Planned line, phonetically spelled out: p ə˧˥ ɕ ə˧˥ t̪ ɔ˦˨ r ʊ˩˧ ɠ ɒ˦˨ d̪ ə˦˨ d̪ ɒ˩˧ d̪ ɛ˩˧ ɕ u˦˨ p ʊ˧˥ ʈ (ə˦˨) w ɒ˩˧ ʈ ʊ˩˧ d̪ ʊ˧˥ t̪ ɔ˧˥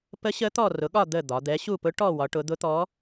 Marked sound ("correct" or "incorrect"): incorrect